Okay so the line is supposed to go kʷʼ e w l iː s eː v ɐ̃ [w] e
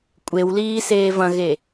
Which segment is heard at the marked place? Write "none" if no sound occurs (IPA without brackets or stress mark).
ɣ